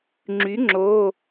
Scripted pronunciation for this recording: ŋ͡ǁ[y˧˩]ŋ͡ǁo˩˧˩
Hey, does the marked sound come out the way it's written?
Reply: no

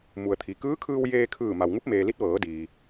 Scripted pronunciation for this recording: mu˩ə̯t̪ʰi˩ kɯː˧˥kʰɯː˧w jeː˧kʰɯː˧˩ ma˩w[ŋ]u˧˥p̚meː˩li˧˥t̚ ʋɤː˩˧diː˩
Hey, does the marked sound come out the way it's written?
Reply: yes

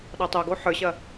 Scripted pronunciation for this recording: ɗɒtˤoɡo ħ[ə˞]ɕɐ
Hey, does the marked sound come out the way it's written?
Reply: yes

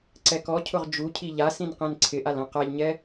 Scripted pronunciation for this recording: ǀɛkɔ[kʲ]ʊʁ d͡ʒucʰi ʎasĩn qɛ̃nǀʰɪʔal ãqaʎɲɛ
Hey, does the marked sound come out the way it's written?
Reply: no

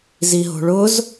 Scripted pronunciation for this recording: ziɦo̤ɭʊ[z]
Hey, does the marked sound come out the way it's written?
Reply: yes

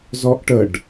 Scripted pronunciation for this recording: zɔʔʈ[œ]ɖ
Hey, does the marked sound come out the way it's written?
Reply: no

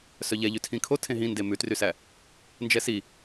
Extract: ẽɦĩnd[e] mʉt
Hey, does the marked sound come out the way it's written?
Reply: yes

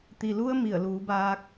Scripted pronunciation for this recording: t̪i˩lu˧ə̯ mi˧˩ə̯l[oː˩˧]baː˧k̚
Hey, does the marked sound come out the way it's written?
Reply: no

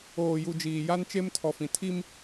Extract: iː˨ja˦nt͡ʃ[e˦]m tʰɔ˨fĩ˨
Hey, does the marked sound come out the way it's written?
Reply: yes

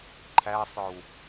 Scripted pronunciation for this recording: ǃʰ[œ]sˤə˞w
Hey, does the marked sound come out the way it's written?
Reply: no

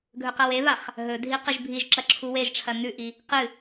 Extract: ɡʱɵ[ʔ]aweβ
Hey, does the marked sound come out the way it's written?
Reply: no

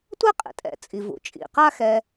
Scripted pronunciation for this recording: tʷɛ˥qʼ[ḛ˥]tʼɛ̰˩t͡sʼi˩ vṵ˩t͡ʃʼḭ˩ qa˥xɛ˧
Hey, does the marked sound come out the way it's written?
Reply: no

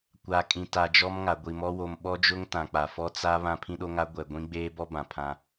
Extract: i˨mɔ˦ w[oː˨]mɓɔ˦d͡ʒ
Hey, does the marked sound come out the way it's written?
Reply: no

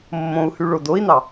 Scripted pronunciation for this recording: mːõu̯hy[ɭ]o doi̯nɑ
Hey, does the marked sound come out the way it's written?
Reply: yes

